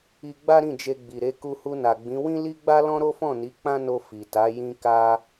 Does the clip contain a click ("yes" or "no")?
no